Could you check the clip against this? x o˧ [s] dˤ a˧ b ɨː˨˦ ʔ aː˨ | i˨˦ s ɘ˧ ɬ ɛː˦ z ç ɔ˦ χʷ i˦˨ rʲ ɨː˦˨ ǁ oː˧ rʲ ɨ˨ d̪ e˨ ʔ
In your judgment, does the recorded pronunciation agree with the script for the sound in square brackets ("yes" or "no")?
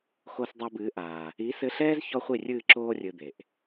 yes